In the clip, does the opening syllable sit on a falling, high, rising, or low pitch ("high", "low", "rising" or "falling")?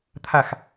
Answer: falling